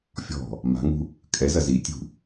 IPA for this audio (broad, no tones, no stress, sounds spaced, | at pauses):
fʲ ɔ̤ | m a̤ ŋ ṳ | kʼ ɛ z ɐ z i tʲ ṳ